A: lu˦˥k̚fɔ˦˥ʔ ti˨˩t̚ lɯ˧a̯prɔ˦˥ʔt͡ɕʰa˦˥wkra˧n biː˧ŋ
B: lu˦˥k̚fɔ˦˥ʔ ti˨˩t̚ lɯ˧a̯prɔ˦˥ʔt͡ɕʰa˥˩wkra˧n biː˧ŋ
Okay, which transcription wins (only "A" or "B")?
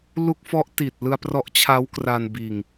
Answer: A